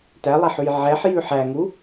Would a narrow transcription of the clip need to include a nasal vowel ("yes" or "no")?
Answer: no